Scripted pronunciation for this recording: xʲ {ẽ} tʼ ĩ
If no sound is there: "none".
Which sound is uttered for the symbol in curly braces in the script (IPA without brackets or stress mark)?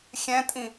ɛ̃